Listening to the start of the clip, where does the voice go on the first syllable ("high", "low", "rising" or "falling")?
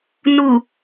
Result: low